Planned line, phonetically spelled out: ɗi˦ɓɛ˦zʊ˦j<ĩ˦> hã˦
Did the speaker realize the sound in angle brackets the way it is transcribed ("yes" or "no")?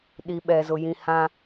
yes